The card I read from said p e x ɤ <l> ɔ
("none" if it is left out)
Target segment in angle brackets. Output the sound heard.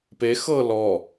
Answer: l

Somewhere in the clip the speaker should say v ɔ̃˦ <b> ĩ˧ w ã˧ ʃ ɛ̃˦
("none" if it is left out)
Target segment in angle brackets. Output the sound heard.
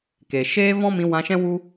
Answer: m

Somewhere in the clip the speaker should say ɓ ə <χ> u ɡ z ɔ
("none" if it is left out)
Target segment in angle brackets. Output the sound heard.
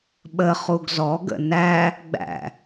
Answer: χ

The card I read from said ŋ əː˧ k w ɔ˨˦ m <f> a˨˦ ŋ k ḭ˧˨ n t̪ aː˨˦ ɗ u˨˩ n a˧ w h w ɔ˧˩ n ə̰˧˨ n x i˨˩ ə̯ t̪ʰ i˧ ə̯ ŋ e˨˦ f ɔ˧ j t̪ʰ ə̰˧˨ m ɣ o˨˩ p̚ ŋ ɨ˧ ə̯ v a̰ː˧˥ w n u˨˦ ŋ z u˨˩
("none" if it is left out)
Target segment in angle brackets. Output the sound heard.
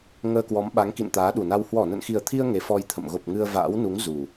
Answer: ɓ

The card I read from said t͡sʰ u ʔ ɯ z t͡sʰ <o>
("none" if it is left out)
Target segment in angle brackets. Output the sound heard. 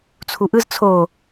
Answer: o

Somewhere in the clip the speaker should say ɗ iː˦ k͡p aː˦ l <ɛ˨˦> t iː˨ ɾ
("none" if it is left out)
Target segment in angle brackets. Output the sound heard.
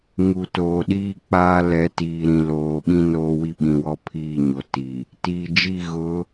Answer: ɛ˨˦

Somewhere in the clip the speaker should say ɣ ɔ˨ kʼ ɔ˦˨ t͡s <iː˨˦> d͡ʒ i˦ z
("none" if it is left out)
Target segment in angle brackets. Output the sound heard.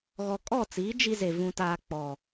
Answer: iː˨˦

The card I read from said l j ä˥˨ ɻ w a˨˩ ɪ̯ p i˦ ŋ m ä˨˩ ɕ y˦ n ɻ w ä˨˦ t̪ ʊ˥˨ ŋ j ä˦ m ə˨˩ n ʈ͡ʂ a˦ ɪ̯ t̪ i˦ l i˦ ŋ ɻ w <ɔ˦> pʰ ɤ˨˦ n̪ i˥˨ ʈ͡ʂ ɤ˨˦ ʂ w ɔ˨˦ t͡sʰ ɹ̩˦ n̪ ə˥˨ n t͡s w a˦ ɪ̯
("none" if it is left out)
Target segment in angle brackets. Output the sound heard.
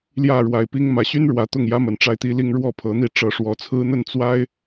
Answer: ɔ˥˨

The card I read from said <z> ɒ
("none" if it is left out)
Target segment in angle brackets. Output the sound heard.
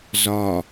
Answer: z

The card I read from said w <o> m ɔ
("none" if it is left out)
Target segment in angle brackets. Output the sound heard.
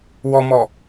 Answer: ɔ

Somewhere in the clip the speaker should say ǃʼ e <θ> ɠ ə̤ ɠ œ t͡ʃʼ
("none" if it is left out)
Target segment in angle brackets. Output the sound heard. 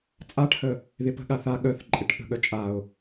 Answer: ʈ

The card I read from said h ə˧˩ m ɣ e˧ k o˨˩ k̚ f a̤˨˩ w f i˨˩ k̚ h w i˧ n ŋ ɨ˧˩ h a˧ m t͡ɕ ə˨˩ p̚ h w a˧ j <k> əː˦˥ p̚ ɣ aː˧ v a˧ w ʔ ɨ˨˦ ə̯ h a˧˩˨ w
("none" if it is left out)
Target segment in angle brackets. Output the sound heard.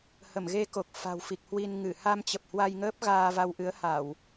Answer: ŋ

